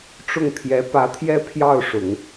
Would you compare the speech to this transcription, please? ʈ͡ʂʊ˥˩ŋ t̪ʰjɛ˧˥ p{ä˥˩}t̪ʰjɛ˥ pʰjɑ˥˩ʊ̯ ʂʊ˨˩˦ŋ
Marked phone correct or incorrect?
incorrect